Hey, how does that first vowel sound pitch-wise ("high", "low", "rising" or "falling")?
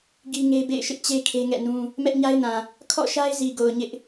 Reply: high